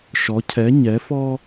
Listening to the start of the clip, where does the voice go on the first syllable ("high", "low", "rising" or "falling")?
rising